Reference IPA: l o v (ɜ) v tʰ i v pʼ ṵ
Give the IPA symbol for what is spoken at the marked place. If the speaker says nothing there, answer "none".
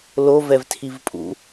ɛ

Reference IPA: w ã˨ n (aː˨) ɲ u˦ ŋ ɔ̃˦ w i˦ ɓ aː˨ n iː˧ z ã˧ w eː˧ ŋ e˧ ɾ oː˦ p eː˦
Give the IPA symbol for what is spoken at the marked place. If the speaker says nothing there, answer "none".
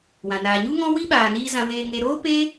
aː˨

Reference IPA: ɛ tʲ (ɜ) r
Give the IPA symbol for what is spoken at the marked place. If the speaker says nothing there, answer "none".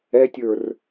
ə˞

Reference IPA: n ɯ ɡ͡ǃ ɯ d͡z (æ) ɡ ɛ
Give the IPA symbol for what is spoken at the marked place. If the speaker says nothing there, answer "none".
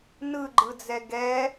ɛ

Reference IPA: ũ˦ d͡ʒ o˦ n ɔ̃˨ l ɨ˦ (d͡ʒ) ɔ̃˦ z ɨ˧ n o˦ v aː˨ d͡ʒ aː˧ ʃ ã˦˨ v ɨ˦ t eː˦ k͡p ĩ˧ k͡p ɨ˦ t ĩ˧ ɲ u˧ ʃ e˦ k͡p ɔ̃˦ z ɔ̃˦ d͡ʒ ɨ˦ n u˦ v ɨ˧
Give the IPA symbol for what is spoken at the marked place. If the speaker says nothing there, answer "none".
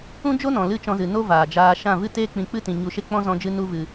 t͡ʃ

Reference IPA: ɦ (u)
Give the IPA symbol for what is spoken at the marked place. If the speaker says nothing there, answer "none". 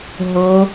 o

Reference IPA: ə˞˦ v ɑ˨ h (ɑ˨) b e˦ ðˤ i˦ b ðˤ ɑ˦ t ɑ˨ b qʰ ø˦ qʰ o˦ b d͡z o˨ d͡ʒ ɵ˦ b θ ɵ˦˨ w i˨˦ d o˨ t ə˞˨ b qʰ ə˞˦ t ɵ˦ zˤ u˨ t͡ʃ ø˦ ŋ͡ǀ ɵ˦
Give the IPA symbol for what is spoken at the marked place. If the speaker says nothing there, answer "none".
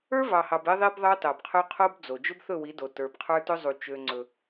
ɑ˨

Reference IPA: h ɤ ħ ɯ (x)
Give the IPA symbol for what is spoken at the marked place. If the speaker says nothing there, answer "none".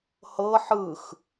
x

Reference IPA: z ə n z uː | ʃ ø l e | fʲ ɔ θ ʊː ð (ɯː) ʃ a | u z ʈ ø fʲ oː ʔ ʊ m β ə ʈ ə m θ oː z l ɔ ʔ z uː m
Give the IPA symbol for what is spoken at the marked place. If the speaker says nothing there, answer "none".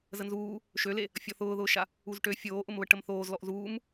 ʊː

